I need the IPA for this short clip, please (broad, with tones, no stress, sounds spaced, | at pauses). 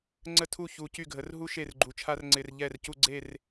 ŋ͡ǀ ə˥˨ tʰ u˥˨ ç u˨ c y˥˨ ɡʱ ə˨˦ r ɦ u˥ ʃ e˥˨ r ɡ͡ǃ u˨ t͡ʃʰ a˥ r ŋ͡ǀ ɪ˨ r ʎ ɛ˥˨ r c u˥˨ ɡ͡ǀ e˥˨ r